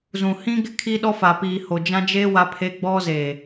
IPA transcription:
zũ˨ hĩ˦ɡɪ˦ kʰi˦ɗɔ˦fa˨piː˨ ho˨d͡ʒã˦d͡ʒeː˦ wa˦pʰe˦ɡ͡bɔ˦ zeː˨

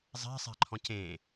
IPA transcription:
zˤɛ̤sˤɛ̤ǃʰɔ̃c ẽ

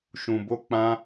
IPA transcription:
ʃũ˧bo˦k͡pã˦

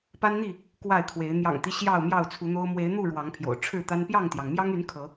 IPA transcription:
pa˦nn̪i˥˨ | kwa˥˨ɪ̯kʰwe˨˦ɪ̯ n̪jɑ̰˨˩ŋt̪i˦ ɕjɑ˥˨ʊ̯mjɑ˥˨ʊ̯t͡sʰu˨˦n̪o˦ʊ̯ mwe˨˦ɪ̯n̪u˥˨ ɻwɑ˨˦ŋpʰjo̰˨˩ʊ̯ʈ͡ʂʰɻ̩˥˨t̪a˦n pjɑ˥˨ŋt̪jɑ˩ŋmjɑ˦ŋy˨˦n kʰɤ˨˦

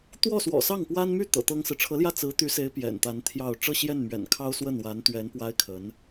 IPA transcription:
t̪wɔ˥˩swɔ̰˨˩sɑ˥˩ŋpwa˥n my˥˩ t̪ɤ̰˨˩t̪ɤ˥ŋsɹ̩˨ ʈ͡ʂʰɤ˧˥ljä˥˩ t͡sɹ̩˧˥t̪y˧˥se˧˥ɪ̯ pjɛ̰˨˩nt̪a˧˥nt̪ʰjɑ˥˧ʊ̯ ʈ͡ʂɤ˥˧ɕjɛ˥˩nmɥɛ̰˨˩nkʰɑ˥ʊ̯ swə˥˩nwa˧˥nt̪ɥɛ˧˥n pwa˥ɪ̯kʰə˧˥n

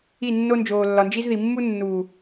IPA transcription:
i˦˨nːo˦ nd͡ʒoː˨lːɒ˨nd͡ʒi˦zði˨ mːu˦nːuː˨

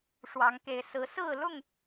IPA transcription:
ʂwɑ˨˦ŋke˨˦ɪ̯ sɹ̩˨˦ sɹ̩˥˨lʊ˥˨ŋ

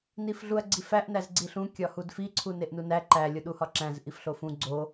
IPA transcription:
nifɮuɐ̯ɡ͡ǀifæʔ næzɡ͡ǀiɬũ kʲɒhudfi ǀʰuneʔnunæ ǃæ lʲoɗuhɒǁæ̃z ʔifɬofũ ɡ͡ǀo

